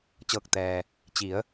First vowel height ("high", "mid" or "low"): mid